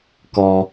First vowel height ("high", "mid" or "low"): mid